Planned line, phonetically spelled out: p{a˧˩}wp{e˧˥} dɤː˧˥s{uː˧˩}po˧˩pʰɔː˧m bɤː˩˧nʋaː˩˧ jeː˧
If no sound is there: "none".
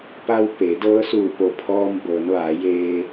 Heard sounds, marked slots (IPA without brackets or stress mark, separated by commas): a˧, e˩˧, uː˧˩